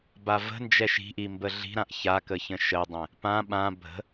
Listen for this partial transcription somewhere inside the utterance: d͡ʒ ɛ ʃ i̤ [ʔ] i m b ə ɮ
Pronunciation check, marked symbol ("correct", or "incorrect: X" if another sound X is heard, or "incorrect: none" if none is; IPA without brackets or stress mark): correct